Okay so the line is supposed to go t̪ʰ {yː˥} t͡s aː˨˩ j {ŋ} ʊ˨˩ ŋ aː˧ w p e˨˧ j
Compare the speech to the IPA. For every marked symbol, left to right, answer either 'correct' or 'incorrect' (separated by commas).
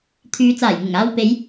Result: incorrect, correct